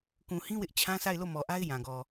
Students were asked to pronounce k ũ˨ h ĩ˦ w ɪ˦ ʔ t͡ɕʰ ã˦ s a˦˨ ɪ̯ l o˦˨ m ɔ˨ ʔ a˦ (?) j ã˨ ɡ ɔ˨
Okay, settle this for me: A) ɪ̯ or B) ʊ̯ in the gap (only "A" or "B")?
A